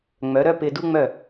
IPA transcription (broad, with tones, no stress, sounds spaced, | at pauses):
ŋ͡m œ˩˥ ɾ œ˥ p ɪ˧ d u˥ ŋ͡m œ˥˩